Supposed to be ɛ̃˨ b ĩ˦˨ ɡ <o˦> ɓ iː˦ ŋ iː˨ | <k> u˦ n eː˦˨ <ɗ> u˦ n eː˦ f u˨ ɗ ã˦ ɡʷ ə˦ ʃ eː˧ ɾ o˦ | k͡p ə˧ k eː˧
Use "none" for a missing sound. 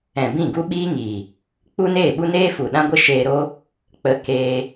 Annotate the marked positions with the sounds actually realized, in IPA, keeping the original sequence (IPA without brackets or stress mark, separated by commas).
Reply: u˦, k͡p, ɓ